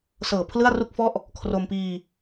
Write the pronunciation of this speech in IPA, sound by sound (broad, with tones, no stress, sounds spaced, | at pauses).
s ɤː˨˩ pʰ l ɯ˥˩ a̯ r u˥˩ k̚ f ɔ˥˩ ʔ | kʰ r o˧ m p iː˧